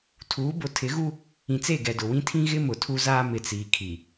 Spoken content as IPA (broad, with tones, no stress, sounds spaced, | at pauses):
tʰ uː˨˦ b ʊ˨ tʰ ɪ˨˦ ɣ u˦ | ĩ˨ t͡s e˦˨ ɡ ɛ˨ d ʊ˨ w ĩ˦ tʰ ĩ˦ ɣ ɪ˦ m ʊ˨ tʰ u˦ z aː˦ m ɪ˨ t͡s iː˨ kʰ i˨